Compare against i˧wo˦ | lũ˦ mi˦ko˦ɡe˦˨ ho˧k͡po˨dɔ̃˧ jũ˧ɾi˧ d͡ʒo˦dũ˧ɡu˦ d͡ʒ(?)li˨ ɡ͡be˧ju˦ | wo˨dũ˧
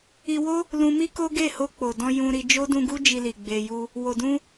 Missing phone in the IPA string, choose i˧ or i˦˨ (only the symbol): i˧